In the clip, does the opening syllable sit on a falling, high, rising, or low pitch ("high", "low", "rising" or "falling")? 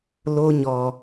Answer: high